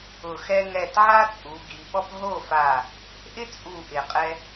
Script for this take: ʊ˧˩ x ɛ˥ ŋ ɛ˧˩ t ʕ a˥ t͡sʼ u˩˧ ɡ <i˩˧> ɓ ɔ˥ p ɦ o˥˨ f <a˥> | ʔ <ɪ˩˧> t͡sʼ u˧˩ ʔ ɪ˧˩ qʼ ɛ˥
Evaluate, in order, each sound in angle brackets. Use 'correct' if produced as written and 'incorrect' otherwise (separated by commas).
correct, incorrect, incorrect